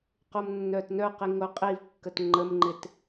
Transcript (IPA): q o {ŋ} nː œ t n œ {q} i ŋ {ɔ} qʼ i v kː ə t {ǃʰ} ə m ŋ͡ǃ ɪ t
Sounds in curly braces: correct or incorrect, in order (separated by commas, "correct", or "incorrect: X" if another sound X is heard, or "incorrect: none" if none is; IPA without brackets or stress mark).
incorrect: m, correct, incorrect: o, incorrect: ŋ͡ǃ